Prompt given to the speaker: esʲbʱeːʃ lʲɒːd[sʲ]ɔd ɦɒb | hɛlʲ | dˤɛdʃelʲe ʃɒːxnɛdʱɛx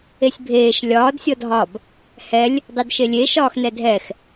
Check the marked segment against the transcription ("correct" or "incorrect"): correct